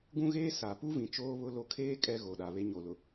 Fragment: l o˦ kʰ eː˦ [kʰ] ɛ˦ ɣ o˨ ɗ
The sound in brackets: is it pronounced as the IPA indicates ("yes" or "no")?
no